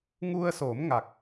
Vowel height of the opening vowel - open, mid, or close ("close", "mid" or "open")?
close